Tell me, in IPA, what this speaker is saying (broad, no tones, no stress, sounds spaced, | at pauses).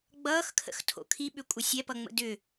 ɡ͡b ʌː x kʰ ə̰ x tʰ o̰ kʰ i ɓ ʏ kʷʼ ə sʲ ɛ p ʌ ŋ͡m ə̰ d ʏ